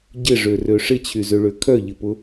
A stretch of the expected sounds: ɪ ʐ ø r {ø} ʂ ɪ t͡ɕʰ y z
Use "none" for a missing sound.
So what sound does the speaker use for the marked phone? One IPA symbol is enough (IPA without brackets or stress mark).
ø